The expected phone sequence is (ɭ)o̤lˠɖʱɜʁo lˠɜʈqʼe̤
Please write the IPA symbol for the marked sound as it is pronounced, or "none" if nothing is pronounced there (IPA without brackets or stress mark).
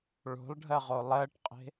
ɭ